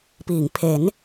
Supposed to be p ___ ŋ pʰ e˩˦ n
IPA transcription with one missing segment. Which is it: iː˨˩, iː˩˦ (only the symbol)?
iː˩˦